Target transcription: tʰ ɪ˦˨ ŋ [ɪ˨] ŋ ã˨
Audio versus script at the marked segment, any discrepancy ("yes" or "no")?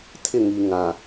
yes